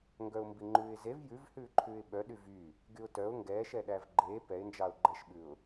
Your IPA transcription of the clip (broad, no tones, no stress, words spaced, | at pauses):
ŋɡœʊ̯mbiŋ͡ǃʉːɪ̯zev jʉv hʉːǃʰʉːɪ̯ɓœ ɗyvy | ɡyʊ̯tœʊ̯ ŋɡɛːʃɛɗæv ɡ͡ǃeː pɛɪ̯nd͡ʒɑʊ̯ ɡ͡ǃɛʃɓʉʊ̯